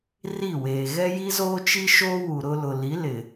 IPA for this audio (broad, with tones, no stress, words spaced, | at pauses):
ri˦˨weː˨ ɣɛ˦ji˦zoː˦t͡ʃi˦ ʃoː˦wu˨ ɾʊ˦ lʊ˨li˨˦lɪ˨